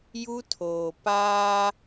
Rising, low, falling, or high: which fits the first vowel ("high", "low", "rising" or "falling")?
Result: high